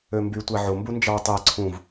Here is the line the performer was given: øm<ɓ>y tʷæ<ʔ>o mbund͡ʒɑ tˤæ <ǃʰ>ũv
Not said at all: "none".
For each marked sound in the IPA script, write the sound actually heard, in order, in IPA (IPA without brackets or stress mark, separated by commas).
b, ʕ, ǀʰ